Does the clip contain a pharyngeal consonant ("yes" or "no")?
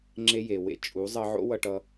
yes